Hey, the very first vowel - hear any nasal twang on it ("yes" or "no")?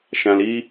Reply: yes